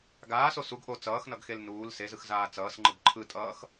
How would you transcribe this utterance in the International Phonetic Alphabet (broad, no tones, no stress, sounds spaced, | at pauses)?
ɡ aː s o s u ɡ ʔ o t͡s ʌː x n ʌ ɡ x e l n uː l s e z ɯ x z aː t͡s ʌː s ŋ͡ǃ ɯ b ǃʰ ɯ tʼ ʌː x